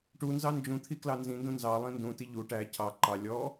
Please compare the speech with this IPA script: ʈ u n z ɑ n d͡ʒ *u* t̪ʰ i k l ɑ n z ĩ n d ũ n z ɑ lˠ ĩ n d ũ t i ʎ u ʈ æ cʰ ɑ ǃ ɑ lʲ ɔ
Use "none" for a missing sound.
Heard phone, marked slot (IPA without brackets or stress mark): ũ